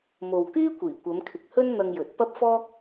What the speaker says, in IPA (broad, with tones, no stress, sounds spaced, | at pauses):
m o˨ w k yː˥ kʷ iː˨˩ kʷ ɐ˨˧ m kʰ ɪ˨ k̚ h ɵ˥ n n̪ ɐ˧ ŋ j ɵ˨ t̚ p ɐ˥ p̚ f ɔː˥ k̚